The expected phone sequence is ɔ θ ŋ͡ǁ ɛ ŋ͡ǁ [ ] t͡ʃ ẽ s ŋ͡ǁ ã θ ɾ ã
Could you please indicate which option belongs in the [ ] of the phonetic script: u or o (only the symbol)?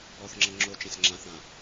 o